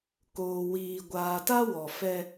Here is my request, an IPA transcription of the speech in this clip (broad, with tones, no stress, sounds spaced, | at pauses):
k oː˨ w iː˨ ɡʷ aː˨ t a˦ w ɔ˨ f ɛ˦